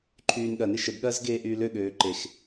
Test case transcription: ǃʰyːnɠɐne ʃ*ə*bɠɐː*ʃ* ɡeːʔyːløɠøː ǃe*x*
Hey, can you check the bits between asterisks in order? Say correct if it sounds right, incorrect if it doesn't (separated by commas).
correct, incorrect, correct